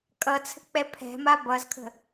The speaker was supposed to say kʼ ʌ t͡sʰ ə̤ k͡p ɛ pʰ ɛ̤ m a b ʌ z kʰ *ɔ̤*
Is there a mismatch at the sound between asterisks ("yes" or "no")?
yes